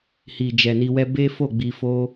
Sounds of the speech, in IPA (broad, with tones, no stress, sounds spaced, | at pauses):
h i˨ d͡ʒ ɛ˨ n i˧ w ɛ˦ b e˦ f o˦˨ ɡ͡b i˧ f o˦